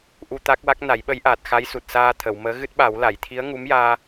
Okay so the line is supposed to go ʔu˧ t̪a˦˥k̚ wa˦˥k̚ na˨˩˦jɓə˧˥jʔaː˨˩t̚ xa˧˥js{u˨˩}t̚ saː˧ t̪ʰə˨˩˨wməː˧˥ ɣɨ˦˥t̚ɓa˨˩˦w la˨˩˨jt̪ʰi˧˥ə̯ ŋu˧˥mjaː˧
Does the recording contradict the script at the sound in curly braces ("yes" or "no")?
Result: no